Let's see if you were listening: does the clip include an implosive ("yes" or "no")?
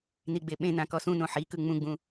yes